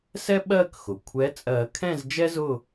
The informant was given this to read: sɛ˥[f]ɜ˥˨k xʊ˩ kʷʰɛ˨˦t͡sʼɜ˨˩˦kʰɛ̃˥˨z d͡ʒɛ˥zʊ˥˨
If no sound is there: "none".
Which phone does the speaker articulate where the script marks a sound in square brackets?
ɓ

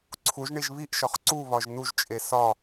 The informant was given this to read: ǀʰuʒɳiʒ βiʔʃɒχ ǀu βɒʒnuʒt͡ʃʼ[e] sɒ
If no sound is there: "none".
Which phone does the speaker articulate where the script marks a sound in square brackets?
e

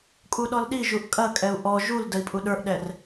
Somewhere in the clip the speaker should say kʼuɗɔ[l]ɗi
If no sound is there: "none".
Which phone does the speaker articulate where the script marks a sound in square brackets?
l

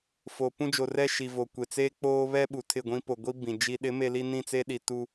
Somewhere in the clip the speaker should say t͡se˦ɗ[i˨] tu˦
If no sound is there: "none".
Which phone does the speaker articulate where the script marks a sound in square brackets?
i˨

